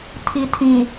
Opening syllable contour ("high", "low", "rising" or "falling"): low